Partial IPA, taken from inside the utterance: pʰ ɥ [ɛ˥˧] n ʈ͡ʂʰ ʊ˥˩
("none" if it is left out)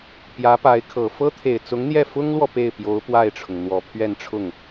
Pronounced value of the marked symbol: ɛ˥˧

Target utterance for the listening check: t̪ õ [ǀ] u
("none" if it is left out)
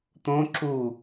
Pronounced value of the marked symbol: ǁ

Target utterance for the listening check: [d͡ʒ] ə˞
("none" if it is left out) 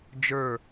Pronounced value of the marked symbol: d͡ʒ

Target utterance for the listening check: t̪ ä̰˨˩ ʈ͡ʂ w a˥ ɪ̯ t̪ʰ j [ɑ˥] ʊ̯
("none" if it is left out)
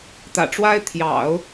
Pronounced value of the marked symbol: ɑ̰˨˩˦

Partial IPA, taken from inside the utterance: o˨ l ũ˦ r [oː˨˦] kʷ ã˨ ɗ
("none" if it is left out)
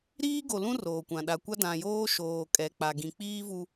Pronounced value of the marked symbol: oː˨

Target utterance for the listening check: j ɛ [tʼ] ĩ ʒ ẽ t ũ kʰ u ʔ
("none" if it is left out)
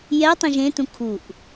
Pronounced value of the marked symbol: tˤ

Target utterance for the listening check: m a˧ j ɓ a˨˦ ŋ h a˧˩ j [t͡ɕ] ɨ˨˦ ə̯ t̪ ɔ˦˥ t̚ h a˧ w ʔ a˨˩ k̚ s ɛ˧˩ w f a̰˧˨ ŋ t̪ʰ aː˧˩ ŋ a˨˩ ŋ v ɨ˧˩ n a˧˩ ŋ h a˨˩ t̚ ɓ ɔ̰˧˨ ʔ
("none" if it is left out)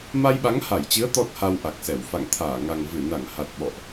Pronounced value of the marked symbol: t͡ɕ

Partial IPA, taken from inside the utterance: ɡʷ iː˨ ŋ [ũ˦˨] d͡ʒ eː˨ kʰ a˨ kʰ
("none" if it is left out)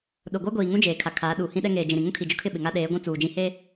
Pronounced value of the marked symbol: ũ˦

